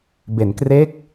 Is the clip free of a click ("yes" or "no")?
yes